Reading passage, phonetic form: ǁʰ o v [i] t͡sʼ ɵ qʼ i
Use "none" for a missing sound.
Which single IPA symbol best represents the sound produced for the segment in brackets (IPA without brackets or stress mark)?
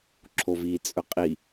i